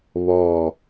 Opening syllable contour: low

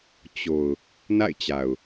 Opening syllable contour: low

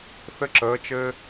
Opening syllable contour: rising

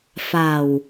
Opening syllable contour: low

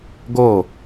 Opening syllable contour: falling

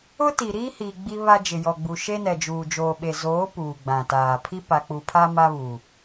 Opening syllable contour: high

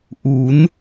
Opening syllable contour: rising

